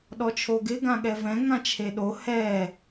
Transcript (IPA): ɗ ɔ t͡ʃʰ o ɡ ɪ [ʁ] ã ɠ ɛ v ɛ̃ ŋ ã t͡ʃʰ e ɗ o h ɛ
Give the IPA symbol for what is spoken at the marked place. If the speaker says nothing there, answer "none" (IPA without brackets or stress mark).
ɡ